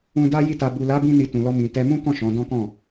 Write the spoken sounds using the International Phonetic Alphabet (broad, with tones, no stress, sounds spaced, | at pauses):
ũ˧ d a˦ j i˦˨ t a˧ b u˨ l a˨˦ b ĩ˧ n i˧ t ũ˨ l ɔ˧ m ĩ˨ t ɛ˧ m ũ˦ k ɔ̃˦˨ ʃ ɔ̃˨˦ d ɔ̃˦ k ɔ̃˦˨